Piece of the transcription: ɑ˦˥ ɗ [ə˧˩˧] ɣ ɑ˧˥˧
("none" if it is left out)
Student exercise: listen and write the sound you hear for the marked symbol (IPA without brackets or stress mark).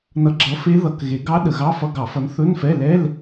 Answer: ə˧˩˧